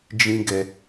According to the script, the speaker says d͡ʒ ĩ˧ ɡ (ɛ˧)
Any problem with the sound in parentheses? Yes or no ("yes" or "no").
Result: no